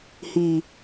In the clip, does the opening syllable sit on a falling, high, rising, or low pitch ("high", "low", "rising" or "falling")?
low